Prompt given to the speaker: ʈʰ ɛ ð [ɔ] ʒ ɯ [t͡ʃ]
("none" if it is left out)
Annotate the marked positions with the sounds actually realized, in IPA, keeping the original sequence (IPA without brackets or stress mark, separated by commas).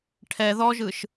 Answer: ɔ, ʃ